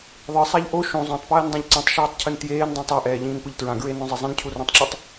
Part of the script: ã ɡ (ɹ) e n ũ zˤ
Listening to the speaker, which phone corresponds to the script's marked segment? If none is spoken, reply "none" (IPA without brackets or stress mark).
ɹ